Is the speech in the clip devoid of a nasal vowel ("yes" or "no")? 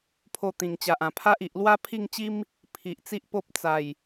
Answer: no